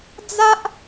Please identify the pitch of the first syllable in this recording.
high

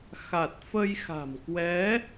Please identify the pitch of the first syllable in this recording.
low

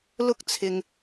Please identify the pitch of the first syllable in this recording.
high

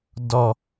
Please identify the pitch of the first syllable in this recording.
low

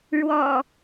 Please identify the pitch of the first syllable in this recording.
low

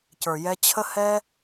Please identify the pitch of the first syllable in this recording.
low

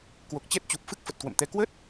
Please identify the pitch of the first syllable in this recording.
low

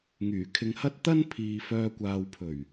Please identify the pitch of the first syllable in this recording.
low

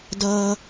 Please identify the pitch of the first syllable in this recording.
high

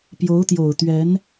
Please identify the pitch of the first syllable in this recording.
rising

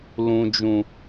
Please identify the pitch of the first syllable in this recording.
low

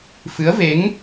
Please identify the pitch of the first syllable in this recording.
rising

